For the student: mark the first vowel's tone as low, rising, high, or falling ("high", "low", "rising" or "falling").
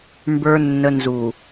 low